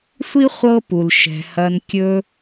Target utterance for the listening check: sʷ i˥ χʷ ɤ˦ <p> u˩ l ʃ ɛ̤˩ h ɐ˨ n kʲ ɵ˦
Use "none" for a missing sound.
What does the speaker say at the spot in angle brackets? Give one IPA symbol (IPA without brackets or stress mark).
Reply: p